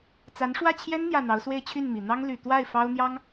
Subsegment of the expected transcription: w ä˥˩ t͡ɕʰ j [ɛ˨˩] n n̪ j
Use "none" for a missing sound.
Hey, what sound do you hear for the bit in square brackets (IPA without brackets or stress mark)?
ɛ˥